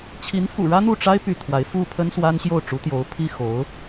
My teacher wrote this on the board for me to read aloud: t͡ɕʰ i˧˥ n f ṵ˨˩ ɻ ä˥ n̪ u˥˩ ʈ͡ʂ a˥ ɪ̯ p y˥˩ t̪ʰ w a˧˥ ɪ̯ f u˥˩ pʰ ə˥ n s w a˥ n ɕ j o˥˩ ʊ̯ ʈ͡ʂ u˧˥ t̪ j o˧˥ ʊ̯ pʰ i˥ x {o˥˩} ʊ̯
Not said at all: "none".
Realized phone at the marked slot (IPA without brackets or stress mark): o˧˥